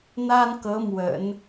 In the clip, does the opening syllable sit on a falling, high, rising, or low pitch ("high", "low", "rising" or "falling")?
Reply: high